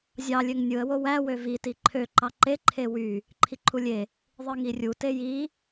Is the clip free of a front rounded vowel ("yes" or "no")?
no